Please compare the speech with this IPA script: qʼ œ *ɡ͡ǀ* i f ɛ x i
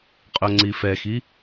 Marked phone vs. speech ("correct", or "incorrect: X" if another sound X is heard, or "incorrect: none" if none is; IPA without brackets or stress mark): incorrect: ŋ͡ǀ